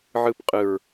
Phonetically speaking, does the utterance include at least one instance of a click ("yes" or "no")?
no